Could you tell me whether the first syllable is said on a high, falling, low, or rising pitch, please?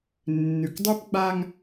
low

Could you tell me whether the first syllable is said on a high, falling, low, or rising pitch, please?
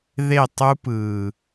falling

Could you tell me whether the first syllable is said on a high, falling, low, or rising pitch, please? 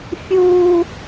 high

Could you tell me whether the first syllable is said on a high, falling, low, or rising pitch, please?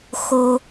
low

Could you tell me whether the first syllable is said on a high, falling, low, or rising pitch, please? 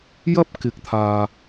high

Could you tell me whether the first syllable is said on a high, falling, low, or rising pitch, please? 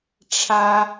high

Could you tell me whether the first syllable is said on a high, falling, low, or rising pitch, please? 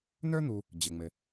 high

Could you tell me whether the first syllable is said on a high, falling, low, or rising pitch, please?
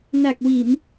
low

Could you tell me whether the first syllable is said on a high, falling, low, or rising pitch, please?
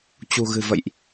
low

